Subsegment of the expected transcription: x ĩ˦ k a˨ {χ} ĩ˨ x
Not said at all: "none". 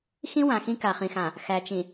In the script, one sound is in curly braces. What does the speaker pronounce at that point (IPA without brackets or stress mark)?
χ